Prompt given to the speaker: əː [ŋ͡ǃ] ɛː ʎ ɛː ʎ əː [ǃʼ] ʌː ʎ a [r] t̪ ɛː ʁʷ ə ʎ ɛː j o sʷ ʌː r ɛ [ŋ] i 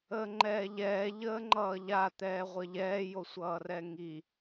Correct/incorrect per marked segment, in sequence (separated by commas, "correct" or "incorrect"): correct, incorrect, incorrect, correct